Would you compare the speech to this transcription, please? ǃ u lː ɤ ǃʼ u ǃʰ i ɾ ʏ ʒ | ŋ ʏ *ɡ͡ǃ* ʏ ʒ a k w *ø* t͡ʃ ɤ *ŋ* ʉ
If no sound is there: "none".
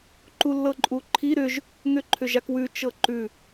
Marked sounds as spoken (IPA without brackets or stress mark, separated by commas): ǃʰ, ʉ, ǃ